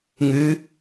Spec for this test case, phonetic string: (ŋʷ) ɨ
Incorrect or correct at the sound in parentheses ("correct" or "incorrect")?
incorrect